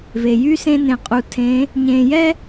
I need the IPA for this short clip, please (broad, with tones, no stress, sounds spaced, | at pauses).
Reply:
v e˩ j y˥ s ẽ˥ n ẽ˧ qʼ u˧ tʰ ẽ˧˥ | ɲ ẽ˧ j ɛ˥